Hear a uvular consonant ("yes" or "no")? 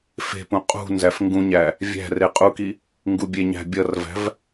yes